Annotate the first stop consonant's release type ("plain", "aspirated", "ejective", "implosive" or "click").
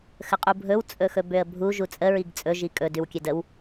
ejective